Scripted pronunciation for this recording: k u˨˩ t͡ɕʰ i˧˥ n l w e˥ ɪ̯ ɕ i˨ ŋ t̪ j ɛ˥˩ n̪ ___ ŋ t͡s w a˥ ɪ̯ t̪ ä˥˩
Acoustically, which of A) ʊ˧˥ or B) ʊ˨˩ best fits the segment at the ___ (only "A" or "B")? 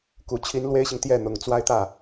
B